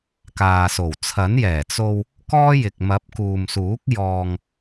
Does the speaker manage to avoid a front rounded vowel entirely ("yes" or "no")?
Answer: yes